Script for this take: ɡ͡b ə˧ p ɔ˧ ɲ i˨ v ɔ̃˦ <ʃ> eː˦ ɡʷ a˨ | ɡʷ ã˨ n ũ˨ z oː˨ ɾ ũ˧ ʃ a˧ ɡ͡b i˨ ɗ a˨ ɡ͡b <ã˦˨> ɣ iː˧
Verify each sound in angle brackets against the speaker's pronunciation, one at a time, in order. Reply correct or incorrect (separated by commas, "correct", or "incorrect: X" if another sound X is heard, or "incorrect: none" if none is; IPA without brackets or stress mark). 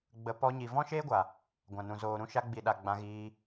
correct, incorrect: ã˧